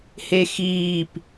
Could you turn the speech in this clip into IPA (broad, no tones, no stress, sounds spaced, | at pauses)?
h e x iː p